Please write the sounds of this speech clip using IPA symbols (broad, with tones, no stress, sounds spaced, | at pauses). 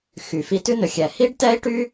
x y˨ f i˧ t ʉ˦ n ɵ˨ xʲ ɛ˨ h i˦ ɖ t ɛ˦ i̯ ʈ y˦